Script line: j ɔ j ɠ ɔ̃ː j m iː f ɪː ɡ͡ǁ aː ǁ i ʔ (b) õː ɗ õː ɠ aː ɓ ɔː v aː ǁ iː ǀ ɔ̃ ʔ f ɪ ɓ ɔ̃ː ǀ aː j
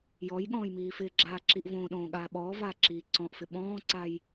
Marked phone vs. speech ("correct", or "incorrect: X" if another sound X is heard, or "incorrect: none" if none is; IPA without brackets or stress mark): incorrect: v